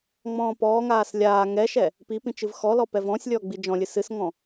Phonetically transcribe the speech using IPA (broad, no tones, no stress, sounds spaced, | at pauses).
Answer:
ŋ͡m ɔ̃ː p ɔː ŋ aː s lʲ aː ŋ ɛ ʃ ɛ | p i p ĩ t͡ʃ ɨ v x ɔ l ɔ p ɛ v ɔ̃ː sʲ lʲ ɔː ɡ͡b i d͡ʒ ɔ̃ lʲ ɨ s ɨ s ŋ ɔ̃